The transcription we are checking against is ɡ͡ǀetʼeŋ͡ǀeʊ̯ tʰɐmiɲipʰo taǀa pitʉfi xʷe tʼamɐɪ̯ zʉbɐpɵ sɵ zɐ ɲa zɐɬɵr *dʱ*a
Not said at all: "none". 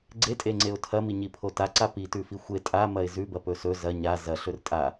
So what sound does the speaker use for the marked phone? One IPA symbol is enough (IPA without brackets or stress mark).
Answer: tʼ